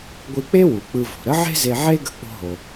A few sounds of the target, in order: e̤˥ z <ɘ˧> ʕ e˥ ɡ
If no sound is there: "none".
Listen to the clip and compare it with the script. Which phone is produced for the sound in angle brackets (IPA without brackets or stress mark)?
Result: e˧